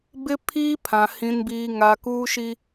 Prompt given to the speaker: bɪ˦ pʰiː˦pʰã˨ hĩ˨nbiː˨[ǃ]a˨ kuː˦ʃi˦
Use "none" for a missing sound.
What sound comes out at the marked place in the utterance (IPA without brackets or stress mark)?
ŋ